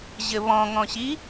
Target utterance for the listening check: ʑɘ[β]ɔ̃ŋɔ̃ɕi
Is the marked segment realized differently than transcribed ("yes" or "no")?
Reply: no